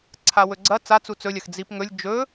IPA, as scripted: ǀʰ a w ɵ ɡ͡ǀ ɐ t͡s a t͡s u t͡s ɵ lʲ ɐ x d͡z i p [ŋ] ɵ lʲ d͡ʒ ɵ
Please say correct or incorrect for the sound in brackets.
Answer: correct